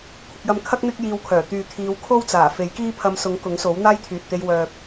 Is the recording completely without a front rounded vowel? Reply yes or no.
no